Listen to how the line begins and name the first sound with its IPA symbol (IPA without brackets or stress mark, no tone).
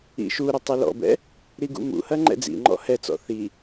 ḭ